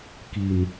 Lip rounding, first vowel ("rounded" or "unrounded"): unrounded